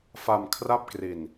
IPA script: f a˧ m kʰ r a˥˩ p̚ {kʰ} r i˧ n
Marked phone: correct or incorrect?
incorrect